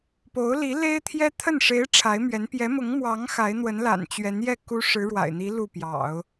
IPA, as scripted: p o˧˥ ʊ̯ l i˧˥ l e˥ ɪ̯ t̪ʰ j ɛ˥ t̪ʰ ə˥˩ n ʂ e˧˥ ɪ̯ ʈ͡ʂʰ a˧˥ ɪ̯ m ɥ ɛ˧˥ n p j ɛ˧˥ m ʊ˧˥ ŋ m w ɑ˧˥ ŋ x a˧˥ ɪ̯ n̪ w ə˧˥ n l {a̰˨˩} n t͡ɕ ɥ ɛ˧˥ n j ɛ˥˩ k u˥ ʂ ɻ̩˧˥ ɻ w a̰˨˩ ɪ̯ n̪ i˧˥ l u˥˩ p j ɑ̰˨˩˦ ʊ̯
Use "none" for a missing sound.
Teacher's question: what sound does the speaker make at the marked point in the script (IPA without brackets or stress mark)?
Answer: a̰˨˩